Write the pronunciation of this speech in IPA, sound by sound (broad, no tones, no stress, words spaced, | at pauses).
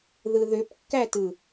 ðɯðøpkːætɯ